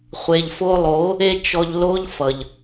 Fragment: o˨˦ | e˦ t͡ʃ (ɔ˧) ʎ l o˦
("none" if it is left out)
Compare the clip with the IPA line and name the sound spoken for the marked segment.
ɔ˧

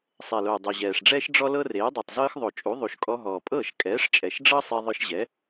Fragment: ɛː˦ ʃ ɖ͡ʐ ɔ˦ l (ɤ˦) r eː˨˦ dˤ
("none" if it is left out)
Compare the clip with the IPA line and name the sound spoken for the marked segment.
ɤ˦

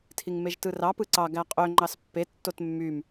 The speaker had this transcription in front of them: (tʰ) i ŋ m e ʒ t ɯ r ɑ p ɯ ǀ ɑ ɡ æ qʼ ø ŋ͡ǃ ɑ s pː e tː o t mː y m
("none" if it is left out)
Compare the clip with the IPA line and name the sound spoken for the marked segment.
tʰ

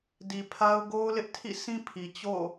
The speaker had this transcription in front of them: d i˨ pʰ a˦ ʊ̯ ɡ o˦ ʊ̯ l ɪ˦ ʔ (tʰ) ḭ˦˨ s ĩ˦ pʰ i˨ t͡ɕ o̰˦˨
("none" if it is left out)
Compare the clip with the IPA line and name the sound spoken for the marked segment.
tʰ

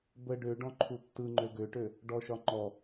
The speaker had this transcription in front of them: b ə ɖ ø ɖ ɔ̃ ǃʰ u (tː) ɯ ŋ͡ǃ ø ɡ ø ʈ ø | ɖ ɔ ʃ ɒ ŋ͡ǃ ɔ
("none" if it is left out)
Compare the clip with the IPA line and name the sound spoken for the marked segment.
tː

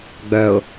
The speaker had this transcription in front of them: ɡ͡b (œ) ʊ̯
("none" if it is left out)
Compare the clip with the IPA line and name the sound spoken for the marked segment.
œ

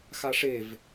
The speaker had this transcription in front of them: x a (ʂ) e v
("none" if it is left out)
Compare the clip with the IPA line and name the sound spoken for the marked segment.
ʂ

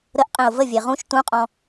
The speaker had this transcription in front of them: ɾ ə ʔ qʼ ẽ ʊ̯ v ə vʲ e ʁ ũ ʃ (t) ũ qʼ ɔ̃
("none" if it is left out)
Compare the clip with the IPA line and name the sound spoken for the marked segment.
t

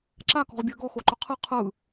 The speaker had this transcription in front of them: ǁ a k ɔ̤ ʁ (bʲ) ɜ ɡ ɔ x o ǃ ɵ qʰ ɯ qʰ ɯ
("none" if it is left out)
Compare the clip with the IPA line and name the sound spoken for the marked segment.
bʲ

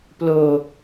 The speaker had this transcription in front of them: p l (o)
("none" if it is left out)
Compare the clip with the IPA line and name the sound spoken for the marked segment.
o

